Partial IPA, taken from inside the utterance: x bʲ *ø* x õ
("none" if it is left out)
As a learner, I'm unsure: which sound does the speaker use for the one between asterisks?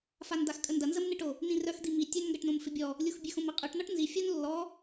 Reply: ø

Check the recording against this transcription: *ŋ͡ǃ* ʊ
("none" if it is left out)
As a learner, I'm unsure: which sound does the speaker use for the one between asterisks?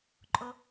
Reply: ǃʼ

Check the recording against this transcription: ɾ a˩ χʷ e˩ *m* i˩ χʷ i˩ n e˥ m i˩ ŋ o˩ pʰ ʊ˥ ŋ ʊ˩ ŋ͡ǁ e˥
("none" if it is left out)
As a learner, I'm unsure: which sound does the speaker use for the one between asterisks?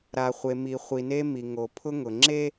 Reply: m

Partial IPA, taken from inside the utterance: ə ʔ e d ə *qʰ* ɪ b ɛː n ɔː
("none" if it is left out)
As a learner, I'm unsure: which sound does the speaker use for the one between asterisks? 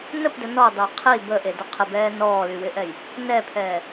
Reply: qʰ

